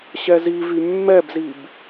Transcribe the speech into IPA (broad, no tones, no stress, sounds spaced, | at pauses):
ɕ ɛ z i v y mː ɛ b z i b